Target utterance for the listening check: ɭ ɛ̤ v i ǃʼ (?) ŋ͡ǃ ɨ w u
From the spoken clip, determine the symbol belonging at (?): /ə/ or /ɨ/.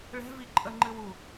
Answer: ə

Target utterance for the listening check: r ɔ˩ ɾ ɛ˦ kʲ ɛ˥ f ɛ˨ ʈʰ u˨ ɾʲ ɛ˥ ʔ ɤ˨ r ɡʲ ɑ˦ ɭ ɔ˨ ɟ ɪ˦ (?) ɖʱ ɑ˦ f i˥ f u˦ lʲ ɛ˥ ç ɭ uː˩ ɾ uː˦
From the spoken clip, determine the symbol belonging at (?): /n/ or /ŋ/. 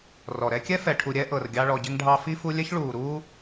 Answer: ŋ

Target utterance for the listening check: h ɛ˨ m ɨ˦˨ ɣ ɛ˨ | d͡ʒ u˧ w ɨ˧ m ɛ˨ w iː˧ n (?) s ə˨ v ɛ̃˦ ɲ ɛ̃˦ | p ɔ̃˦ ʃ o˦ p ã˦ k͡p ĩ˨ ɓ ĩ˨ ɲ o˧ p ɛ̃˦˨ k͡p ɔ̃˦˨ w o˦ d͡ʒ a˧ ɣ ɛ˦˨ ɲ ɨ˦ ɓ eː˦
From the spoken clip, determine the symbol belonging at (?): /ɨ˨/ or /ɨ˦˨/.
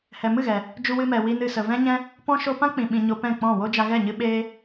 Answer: ɨ˨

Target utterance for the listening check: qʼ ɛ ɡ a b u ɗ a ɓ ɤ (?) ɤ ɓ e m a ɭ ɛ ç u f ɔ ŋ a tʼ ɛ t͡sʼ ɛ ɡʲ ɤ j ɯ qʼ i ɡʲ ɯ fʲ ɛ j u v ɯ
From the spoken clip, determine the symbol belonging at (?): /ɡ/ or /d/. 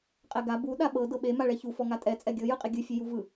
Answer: d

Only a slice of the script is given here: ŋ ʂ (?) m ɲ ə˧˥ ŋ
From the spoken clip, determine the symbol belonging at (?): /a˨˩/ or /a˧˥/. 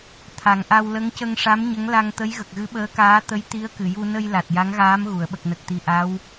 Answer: a˧˥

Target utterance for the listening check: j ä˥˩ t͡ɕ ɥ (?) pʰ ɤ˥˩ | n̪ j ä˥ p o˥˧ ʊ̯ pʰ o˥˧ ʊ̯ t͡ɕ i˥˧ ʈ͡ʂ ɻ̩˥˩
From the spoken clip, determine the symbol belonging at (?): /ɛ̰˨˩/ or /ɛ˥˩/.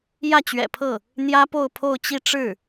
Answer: ɛ̰˨˩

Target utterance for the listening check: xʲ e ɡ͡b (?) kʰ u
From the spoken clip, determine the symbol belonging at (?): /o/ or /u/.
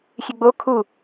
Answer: o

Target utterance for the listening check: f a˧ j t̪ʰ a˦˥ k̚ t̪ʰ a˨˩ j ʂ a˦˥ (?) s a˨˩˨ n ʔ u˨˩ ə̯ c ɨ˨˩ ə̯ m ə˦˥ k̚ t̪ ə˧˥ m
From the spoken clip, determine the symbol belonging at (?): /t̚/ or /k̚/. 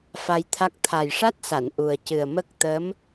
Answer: t̚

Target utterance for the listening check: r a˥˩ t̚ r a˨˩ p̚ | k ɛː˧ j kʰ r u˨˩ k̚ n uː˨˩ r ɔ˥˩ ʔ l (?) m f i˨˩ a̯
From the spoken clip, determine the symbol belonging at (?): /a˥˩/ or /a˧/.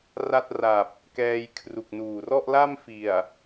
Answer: a˥˩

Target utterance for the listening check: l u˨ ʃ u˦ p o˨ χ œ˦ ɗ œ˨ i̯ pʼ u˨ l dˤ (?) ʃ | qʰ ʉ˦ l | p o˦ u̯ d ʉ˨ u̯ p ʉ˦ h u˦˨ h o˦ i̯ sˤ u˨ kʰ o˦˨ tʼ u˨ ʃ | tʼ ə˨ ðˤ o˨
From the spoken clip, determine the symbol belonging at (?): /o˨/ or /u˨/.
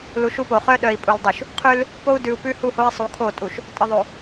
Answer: u˨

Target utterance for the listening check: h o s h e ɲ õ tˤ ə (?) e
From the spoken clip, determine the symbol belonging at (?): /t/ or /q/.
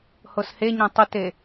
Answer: t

